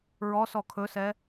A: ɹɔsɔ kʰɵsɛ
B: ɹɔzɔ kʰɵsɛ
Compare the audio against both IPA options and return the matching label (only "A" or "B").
A